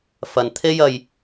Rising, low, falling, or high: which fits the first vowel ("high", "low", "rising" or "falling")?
low